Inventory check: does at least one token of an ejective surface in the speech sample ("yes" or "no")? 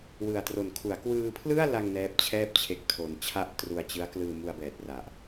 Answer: no